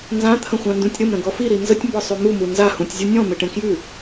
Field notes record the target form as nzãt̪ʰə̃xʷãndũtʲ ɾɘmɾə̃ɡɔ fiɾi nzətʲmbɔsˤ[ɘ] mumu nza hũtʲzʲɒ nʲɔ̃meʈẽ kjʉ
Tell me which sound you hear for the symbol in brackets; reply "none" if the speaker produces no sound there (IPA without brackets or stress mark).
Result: ʉ